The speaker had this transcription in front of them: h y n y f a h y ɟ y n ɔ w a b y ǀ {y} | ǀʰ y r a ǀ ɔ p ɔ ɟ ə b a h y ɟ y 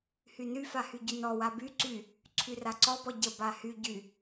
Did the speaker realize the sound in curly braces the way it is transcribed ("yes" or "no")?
yes